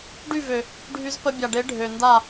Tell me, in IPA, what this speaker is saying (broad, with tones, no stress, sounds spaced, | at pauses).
ɖ y˦˨ v ø˨ | ɖʱ y˧ z p ə˧ bʲ a˨ ɖ e˨˦ ɖʱ ø˨ n d a˦˨